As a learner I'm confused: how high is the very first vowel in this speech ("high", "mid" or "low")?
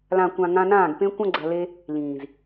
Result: low